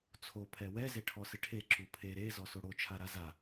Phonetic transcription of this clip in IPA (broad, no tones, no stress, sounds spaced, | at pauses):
t͡sʰ o pʰ ɛ w ɛ z e ʈʰ ɔ s ɪ ʈʰ e ǁ u pʰ e ɾ e z ɔ s o ɽ o t͡ʃʰ a ɾ a z a